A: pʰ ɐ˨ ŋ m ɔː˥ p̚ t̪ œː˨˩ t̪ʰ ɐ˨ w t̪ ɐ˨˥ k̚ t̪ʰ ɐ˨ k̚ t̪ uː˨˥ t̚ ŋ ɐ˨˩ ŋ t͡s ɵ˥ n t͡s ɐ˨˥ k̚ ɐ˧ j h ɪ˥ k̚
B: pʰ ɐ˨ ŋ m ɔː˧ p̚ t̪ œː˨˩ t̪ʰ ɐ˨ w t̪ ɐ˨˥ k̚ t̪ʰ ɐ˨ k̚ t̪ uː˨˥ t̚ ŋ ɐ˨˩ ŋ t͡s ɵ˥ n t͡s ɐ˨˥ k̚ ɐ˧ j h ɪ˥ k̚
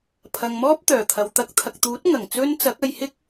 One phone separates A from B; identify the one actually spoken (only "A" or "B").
A